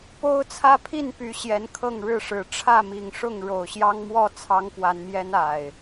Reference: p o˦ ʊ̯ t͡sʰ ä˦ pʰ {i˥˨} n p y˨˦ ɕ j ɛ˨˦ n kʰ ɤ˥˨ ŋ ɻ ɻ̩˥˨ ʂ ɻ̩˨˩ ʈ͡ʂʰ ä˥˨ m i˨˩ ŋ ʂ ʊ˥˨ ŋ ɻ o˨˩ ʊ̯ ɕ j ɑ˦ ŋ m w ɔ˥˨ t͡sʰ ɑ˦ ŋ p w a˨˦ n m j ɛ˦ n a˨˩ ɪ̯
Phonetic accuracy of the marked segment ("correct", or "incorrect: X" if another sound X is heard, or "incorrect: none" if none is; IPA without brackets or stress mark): correct